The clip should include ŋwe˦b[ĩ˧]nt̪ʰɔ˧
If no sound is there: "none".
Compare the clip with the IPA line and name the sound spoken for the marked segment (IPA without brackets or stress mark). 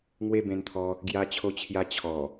ẽ˧